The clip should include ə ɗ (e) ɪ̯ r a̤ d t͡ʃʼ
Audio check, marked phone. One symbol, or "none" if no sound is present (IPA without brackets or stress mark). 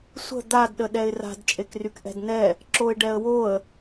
ɛ